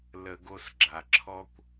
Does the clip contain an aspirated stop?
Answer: yes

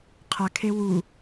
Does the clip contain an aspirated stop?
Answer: yes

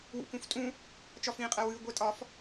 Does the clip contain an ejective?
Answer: yes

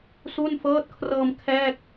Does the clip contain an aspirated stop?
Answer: yes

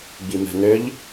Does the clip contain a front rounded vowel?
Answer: yes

